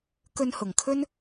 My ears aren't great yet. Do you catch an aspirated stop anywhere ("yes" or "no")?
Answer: yes